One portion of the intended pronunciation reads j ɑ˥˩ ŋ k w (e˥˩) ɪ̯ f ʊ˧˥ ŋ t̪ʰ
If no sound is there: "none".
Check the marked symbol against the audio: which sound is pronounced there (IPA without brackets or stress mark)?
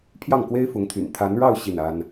e˥